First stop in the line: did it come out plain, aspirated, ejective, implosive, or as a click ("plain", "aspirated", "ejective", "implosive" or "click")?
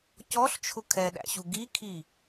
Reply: plain